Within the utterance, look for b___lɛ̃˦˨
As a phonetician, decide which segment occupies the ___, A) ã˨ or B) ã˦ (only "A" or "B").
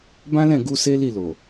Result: B